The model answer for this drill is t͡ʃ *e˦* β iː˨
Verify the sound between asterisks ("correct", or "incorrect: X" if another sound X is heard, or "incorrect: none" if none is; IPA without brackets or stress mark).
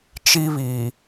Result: incorrect: i˦